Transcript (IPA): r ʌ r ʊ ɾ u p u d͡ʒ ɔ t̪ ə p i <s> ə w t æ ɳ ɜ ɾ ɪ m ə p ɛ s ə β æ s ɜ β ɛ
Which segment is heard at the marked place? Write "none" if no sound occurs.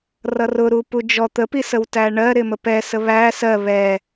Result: s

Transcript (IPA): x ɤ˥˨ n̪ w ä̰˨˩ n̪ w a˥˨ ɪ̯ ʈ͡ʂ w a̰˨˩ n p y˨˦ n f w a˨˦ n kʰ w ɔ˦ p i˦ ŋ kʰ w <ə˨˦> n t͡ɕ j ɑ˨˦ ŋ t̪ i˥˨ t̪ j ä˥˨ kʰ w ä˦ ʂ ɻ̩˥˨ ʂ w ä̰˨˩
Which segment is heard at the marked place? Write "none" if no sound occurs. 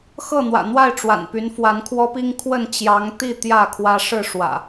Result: ə˥˨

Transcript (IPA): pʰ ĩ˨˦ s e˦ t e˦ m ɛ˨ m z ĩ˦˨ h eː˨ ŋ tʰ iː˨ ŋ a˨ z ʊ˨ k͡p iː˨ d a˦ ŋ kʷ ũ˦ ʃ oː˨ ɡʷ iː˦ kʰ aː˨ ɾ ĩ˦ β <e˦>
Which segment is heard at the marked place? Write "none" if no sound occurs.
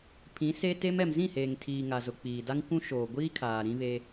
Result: e˦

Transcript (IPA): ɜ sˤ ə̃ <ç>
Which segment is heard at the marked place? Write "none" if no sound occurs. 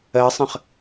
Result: χ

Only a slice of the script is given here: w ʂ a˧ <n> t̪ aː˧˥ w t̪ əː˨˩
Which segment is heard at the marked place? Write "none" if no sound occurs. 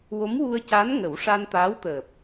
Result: n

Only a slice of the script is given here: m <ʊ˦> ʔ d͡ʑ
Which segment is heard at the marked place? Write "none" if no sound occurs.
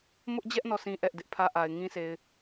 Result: ʊ˦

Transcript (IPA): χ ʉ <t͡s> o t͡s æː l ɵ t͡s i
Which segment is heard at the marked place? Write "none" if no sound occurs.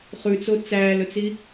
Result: t͡s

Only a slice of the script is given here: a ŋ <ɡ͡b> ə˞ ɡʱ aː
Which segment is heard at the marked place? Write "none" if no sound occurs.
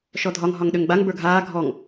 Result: b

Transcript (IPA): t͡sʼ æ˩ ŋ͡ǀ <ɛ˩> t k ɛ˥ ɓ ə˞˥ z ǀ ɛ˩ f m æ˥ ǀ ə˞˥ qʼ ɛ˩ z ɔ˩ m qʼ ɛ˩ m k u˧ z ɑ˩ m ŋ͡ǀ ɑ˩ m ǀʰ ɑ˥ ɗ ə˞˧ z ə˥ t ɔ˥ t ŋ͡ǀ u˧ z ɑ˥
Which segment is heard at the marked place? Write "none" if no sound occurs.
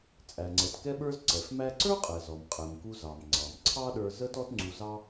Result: ɛ˩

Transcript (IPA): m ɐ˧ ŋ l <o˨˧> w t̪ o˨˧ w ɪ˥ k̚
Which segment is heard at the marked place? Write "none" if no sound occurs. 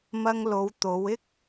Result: o˨˧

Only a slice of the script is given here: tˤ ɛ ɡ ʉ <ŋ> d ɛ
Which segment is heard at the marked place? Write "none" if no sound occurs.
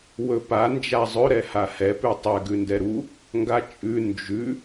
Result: n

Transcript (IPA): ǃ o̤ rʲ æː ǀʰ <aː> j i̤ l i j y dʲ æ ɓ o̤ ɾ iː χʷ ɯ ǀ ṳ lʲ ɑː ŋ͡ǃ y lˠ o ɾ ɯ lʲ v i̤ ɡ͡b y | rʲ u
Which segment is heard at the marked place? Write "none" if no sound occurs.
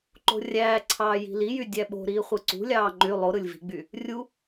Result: ɑː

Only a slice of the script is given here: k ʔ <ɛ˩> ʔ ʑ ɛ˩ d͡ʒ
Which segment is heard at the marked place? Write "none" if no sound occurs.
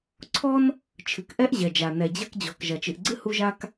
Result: ɛ˥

